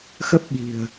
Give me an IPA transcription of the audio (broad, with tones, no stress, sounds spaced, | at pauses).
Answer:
x ə˦˥ p̚ ɓ i̤˨˩ ə̯